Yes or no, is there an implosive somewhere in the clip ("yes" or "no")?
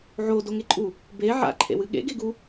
yes